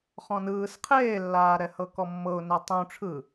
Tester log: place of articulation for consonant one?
uvular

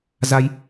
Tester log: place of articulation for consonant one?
alveolar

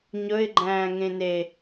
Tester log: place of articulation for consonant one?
palatal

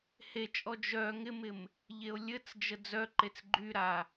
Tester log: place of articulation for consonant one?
glottal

